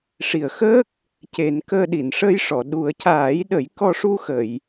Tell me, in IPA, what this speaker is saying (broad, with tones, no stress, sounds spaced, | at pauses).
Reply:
ʂ i˨˩ ə̯ x əː˦˥ k̚ | c e˨˩˦ n k əː˧ ɗ i˨˩˨ n ʂ əː˧ j ʂ ɔ˨˩˨ ɗ u˨˩˦ ə̯ c aː˨˩˦ j ɗ ə˨˩˦ j k ɔ˧ ʂ u˧ x ə˨˩˨ j